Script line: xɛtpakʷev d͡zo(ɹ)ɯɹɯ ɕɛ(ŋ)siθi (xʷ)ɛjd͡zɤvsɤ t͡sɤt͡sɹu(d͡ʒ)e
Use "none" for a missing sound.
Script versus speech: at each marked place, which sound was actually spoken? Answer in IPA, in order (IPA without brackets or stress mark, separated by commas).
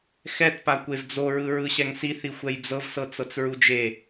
ɹ, ŋ, xʷ, d͡ʒ